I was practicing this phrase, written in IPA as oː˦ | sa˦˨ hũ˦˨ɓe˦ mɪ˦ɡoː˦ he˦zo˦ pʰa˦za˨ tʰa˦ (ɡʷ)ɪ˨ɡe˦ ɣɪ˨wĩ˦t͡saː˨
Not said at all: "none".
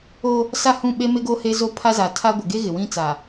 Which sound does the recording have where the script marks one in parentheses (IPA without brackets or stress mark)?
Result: ɡʷ